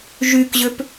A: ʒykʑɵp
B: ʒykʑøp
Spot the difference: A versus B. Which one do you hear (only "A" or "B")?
B